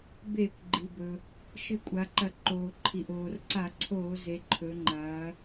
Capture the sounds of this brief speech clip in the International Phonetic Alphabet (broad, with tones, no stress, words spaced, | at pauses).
beː˧˩˧kʷɡ͡ǃi˩bɵ˩ | ʃɨ˧˩˧kʷʼa˩˧ǃɐ˧˩˧ ǃoː˩ ǃʰi˩ʔoː˩rǀa˧˩˧ǀʰoː˧˩˧ ze˩˧ǃʰɵ˩˧ ŋ͡ǃɐː˩˧